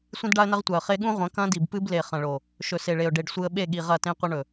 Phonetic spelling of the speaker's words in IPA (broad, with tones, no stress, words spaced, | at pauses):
sʷĩ˦dɖa˦ə̯nɐ˦ʁtʷa˨ə̯ χe˦ ɠũ˦ʁʷɐ̃˨˦ kɐ̃˦di˨bpɨ˦ble˨ χɐ̃˨ɭo˨ | ʃɵ˨se˨ɭe˨ʊ̯ ɖe˨ɖsʷɨ˨ə̯ɓe˦˨ ɠi˨ʁɐ˦˨tẽ˦ qʷɐ˦ɳɵ˨